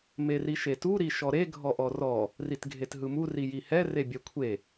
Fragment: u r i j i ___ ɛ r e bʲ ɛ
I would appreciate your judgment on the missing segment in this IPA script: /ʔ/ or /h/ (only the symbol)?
h